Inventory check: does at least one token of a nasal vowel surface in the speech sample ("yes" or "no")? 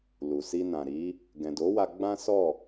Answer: yes